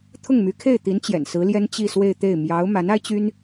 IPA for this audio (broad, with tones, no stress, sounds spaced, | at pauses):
t̪ʰ ʊ˥˩ ŋ m y˧˥ kʰ e˥˩ ɪ̯ t̪ i˧˥ n t͡ɕ j ɛ̰˨˩ n s ɹ̩˧˥ l j ɛ˥ n t͡ɕ i˥˧ s w e˥˧ ɪ̯ t̪ e˥˩ ɪ̯ m j ɑ˧˥ ʊ̯ m a˧˥ n a˥ ɪ̯ t͡ɕ y˥ n